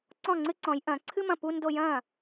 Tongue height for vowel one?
mid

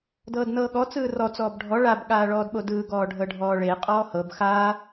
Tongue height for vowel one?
mid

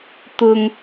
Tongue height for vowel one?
high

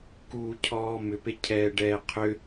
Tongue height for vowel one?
high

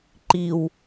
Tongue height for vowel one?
high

